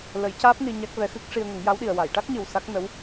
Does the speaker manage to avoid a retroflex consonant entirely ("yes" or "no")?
no